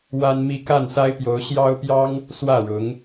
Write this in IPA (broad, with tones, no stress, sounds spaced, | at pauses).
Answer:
w a˥ n m i˥ k a˥˩ n s a˥ ɪ̯ p j o˧˥ ʊ̯ ɕ j ɑ˥ ʊ̯ p j ɑ˥ ŋ | s w ä˥˩ ɻ ʊ˧˥ ŋ